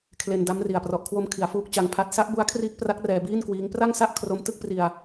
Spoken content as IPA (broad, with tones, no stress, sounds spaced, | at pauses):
kʰ l e˧ n d a˦˥ m r i˨˩ a̯ p r ɔ˨˩ ʔ kʰ w o˧ m kʰ i˩˦ a̯ f uː˦˥ k̚ t͡ɕ a˧ ŋ pʰ a˦˥ t̚ s a˦˥ ʔ b u˦˥ a̯ kʰ r iː˦˥ k̚ p r a˦˥ k̚ r ɛː˧ b iː˥˩ n k w iː˦˥ ŋ p r a˥˩ ŋ s a˥˩ ʔ kʰ r o˧ m t ɯ˥˩ k̚ p r i˧ a̯